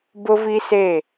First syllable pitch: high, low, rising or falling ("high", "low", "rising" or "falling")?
high